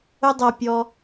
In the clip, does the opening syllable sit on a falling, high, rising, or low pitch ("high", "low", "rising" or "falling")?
high